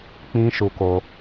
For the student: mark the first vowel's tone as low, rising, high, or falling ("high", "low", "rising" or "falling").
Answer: high